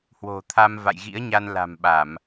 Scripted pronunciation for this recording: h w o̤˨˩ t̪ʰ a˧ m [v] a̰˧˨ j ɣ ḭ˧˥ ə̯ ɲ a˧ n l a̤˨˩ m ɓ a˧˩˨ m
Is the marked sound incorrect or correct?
correct